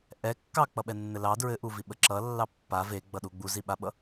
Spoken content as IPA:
ʔ ɛ kː ɑ k͡p ʌ ɓ ɛ nː ɘ l ɑ d ɹ ɘ ʔ u v i ɓ ə ǁ ʌ lː ɑ pː a v e ɡ͡b ʌ ɗ u ɡ͡b u z i ɓ a ɓ ʌ

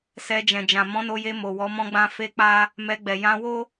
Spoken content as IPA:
s ɛ˧ d͡ʒ ɛ̃˨ d͡ʒ ã˨ m ɔ̃˨˦ n o˧ j e˧ m o˨ w ɔ˨˦ m ɔ̃˦ ɡ͡b ã˦ f e˦ k͡p a˦ | m ɛ˧ ɡ͡b ɛ˨ j ã˧ w o˦

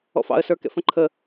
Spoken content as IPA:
ɔ̰ f ɑ̰ ə̯ s ə˞ k ɛ̰ f ə̃ ǃʰ ə

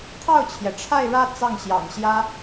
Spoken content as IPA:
t̪ʰ ɑ˥˩ ʊ̯ t͡ɕʰ j ɛ˩ ʈ͡ʂʰ a˥˧ ɪ̯ ɻ ä˥˧ t͡s ɑ˥˩ ŋ ɕ j ɑ̰˨˩ ŋ ɕ j ä˥

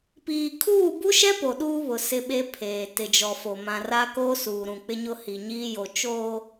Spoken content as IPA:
p iː˨ kʰ uː˦˨ b u˦ ʃ ɛ˦ p o˨ ɗ uː˦ β ʊ˨ s ɪ˦ ɓ e˦ pʰ eː˨ t ɪ˨ d͡ʒ ɔ˨ f o˨ m ã˨ r a˦ k oː˦ s uː˨ ɾ ũ˨ k͡p ɪ˦ ɲ ʊ˦ h i˨ ɲ iː˦ j o˨ t͡ʃ oː˨

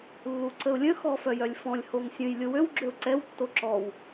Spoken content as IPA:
lː u ǀ ə ʊ̯ lʲ ə̃ x ɔ f œ j œ lʲ f ɔ̃ lʲ h o ŋ sʲ ə̃ j lʲ o w ø w ɡ͡ǁ ø ʊ̯ ǀ ɛ w tː o ǁ ɔ w

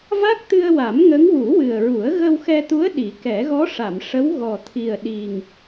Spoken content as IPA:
v a˦˥ k̚ t̪ ɨ˧ ə̯ w a˨˩˦ m ŋ ə˧˥ ŋ w u˨˩˦ w ɨ˨˩ ə̯ ɹ u˨˩˦ ə̯ ɣ ə˧ w x ɛ˧ t̪ u˧˥ ə̯ ɗ i˨˩˦ k ɛ˨˩˦ ɣ ɔ˧˥ ʂ a˨˩˨ m ʂ ə˧˥ w ɣ ɔ˨˩ t̪ʰ i˨˩ ə̯ ɗ i˨˩ ŋ

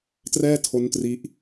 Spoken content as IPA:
t r ɛː˥˩ tʰ o˦˥ n t r i˦˥ ʔ

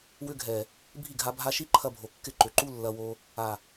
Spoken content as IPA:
w ʏ˧ ɡʱ ɛ˨ | bʱ i˦˨ ɡʱ a˧ bʱ a˧ ʃ i˦ ǃʰ ɐ˧ bʱ o˨ kː ɪ˦˨ ǃ ʏ˨ ǃ u˦ lː ɐ˧ w o˧ | a˨

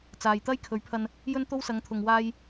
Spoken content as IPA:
t͡s aː˨ j t̪ ɐ˥ j kʰ ɵ˨˥ ɥ pʰ ɐ˧ n | j ɵ˥ n t̪ o˥ w s ɐ˨˧ ŋ t̪ʰ ʊ˨ ŋ w aː˧ j

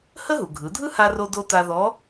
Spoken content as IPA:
h ə˥ ɦ u˩ ɡʱ ɯ˩˧ dʱ ɯ˥ h a˧ r o˧ d o˧ t a˧ ð ɔ˧˥

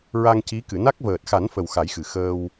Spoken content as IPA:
ɹ a˧ ŋ c i˧˥ k ɨ˨˩˨ n a˦˥ k̚ v əː˨˩ t̚ x a˨˩˦ n f ə˨˩ w x a˨˩˦ j x ɨ˨˩ x əː˧ w

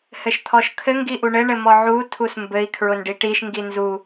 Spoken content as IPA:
h ɘ ʃ t̪ʰ ɔ ʃ kʰ ɘ ŋ ɡ i ʔ u ɳ ɘ ɳ ɘ m ɔ ʕ u tʰ u s m b ɘ i̯ kʰ ɹ ʊ n ɖ i ʈ i ʃ ŋ ɡ i n z u

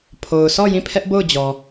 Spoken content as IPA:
pʰ o˨ ʊ̯ s ɔ˦˨ j ĩ˦˨ pʰ ɛ˦ ʔ b o˦˨ ʊ̯ d͡ʑ ɔ˨

